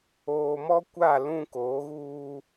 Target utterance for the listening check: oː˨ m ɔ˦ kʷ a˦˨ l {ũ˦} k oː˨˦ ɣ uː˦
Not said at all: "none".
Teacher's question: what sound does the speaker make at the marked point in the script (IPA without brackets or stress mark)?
ũ˦